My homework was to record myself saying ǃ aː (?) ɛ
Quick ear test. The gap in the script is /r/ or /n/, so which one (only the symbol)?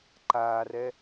r